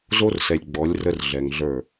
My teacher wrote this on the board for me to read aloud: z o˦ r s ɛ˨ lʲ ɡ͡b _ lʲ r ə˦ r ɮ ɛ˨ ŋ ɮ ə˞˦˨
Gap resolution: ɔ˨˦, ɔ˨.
ɔ˨˦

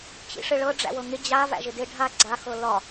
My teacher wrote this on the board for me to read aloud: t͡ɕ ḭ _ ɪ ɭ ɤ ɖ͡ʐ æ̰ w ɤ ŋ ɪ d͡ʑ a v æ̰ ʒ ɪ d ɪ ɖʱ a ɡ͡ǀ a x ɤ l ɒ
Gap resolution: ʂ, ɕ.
ʂ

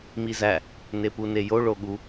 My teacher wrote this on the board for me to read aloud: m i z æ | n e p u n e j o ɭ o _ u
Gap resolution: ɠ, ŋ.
ɠ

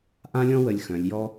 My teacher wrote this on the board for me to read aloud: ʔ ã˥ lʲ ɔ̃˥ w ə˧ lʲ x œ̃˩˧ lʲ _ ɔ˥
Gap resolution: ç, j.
j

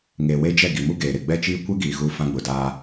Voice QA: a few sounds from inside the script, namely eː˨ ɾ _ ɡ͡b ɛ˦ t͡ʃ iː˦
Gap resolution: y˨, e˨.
e˨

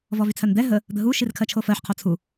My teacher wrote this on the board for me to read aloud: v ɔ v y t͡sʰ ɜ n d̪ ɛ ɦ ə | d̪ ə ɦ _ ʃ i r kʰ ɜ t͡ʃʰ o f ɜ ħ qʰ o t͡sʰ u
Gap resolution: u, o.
u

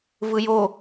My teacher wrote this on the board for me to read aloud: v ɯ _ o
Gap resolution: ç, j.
j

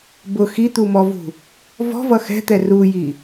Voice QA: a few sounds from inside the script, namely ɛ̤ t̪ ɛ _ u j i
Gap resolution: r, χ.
r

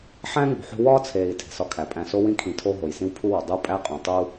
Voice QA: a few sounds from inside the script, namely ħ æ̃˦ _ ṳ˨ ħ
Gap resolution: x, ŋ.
ŋ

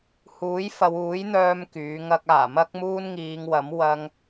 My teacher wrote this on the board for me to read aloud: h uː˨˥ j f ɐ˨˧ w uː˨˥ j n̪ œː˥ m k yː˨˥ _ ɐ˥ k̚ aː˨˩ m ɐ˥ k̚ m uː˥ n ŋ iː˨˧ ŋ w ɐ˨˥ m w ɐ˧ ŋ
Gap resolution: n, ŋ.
ŋ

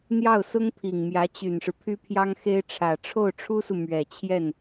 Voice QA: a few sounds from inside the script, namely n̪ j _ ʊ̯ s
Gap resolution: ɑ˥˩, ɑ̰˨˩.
ɑ˥˩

